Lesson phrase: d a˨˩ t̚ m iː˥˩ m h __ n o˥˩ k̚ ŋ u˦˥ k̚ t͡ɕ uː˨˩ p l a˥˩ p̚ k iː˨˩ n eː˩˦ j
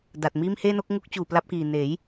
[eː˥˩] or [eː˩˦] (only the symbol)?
eː˥˩